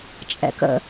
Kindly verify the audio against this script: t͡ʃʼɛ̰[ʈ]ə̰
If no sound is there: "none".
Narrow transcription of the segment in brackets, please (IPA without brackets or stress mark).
k